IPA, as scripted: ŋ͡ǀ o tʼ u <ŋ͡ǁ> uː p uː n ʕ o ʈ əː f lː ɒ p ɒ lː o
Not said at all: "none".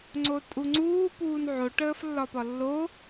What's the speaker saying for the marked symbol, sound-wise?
ŋ͡ǀ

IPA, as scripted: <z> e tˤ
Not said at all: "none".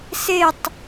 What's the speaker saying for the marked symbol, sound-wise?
s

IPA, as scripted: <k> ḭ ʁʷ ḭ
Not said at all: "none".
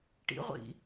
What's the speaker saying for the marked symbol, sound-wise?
ʈ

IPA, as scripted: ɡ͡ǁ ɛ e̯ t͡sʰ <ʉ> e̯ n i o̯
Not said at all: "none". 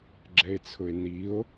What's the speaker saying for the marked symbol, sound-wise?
ʊ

